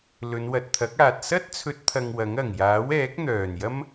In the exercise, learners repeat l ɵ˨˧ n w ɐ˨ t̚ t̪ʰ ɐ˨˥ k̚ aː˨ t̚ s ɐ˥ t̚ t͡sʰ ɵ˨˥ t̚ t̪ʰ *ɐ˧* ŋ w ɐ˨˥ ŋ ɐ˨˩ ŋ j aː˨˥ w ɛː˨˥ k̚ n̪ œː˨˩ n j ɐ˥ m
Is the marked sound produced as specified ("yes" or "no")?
yes